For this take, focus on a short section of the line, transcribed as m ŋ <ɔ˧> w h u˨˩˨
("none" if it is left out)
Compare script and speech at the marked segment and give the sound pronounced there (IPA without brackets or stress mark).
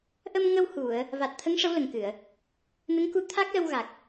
ə˧